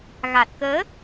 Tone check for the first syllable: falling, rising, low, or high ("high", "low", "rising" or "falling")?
low